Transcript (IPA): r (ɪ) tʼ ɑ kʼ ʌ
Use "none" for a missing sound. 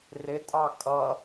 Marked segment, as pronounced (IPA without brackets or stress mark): ɪ